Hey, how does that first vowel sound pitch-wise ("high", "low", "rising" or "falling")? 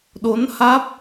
rising